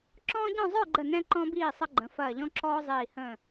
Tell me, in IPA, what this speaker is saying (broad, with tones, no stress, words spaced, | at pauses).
ǁɔ̃ː˥ɟɔ̃˥˧ zˤə˞˥˧ɡ͡ǃə˧˩ nɛ̃˧ǃɔ̃˧biː˧˩ sˤə˧ɡ͡ǃə̃˩˧ fɐː˧˩ʎɔ̃˥ǁɔː˥zˤiː˧˩ hə̃ː˧˩